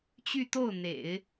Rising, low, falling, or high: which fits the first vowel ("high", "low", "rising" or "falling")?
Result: falling